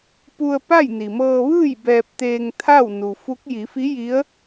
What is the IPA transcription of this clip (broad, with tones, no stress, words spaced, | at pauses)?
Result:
pu˧ə̯pa˥˨j ni˩mɤː˧ʋɯː˥˨j bɛː˧p̚t̪eː˧ŋt̪ʰa˥˨w nu˩fu˧˥k̚ ji˩˧fi˧˥ ji˧˥ə̯